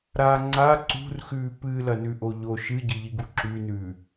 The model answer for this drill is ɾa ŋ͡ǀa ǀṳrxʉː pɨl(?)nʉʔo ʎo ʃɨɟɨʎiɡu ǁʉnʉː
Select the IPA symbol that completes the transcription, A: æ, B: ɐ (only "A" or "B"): B